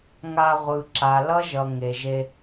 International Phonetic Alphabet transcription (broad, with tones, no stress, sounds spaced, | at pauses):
ŋ a˧ ʁʷ ɯ˨ ǁ a˨ l ʌ˦ ʒ ʌ˨ ŋ e˨ ʒ e˧